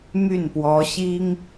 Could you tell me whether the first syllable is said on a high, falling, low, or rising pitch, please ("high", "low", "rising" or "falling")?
falling